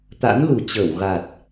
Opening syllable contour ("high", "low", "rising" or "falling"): rising